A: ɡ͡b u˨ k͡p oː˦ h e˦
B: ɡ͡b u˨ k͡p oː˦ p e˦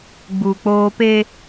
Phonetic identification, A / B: B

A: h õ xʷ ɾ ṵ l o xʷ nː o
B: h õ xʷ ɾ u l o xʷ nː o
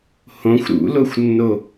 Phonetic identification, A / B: A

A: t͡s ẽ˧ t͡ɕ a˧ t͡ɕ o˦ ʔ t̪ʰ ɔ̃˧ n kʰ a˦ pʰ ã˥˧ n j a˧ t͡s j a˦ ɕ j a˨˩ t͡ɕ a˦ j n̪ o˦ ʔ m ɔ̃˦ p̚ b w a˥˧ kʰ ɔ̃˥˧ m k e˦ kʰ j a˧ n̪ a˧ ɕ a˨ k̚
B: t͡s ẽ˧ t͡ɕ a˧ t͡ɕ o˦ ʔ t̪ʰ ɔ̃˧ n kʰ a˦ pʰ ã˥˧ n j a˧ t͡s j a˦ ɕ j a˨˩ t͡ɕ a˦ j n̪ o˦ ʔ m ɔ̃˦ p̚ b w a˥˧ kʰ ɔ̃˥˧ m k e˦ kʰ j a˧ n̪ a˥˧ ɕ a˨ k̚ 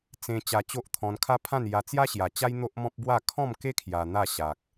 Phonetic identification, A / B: B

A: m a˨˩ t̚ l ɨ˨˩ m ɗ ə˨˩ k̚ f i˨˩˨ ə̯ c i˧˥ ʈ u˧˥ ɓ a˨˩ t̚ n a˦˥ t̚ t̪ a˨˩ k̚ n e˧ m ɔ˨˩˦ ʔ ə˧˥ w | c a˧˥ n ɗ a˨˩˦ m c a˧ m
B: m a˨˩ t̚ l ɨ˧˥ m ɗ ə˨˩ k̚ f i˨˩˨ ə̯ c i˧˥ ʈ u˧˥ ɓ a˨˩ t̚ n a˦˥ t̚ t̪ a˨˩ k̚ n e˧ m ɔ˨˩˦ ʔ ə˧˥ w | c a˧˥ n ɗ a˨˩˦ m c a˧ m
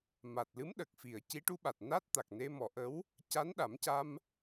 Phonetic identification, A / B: B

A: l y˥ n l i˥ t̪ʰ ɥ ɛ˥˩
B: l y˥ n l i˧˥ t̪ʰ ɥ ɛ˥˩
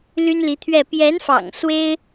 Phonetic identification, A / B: B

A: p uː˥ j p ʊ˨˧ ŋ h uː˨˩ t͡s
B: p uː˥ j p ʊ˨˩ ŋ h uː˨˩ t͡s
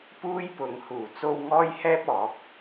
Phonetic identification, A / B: A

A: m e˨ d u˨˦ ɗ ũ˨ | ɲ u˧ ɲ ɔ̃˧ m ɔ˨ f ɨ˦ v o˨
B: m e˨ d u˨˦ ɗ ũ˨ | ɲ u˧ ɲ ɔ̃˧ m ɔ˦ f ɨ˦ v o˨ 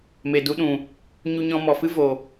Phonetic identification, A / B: A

